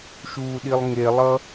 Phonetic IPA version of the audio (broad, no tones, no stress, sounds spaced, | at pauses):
ʃ u ɗ i lˠ ŋ e lˠ ʌ